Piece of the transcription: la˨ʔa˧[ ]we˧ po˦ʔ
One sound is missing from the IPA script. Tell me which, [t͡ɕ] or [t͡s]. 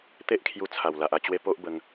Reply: t͡ɕ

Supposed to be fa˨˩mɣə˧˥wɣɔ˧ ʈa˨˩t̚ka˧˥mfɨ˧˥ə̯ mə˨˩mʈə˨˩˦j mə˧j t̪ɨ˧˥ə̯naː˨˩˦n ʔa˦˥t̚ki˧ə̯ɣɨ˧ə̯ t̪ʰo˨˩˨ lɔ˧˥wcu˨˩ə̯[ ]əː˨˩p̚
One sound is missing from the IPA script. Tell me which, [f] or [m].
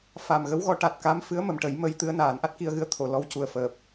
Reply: f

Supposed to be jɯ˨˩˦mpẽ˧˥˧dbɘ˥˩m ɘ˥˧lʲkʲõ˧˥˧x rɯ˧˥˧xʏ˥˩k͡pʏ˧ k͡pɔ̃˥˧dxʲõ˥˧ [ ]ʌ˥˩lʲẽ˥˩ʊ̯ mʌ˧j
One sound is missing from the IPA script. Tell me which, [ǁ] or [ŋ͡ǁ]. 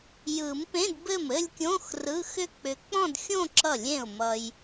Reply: ǁ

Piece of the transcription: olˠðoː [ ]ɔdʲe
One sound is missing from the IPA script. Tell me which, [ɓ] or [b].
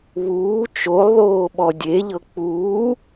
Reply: ɓ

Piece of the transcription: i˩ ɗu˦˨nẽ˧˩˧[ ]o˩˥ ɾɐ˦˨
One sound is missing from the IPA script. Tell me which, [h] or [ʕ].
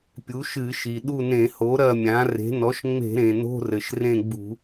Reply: h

